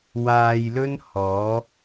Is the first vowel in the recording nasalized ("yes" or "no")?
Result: no